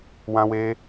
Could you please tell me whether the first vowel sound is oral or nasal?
nasal